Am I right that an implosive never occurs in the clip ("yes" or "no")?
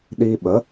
no